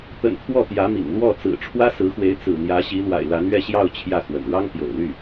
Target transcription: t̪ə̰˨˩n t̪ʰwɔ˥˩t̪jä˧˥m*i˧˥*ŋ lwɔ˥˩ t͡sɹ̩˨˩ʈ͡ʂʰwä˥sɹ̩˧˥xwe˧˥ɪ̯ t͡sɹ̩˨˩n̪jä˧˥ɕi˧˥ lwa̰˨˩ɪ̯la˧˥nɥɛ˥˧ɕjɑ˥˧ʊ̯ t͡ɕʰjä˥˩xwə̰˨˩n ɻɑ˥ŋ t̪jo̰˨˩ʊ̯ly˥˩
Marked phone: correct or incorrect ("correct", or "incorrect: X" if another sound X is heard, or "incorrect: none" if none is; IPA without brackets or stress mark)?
incorrect: ḭ˨˩